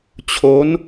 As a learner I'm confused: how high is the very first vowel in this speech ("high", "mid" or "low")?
mid